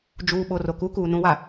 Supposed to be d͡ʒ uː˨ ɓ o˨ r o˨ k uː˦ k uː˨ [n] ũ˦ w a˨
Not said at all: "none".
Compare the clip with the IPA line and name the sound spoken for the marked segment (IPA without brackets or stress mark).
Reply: n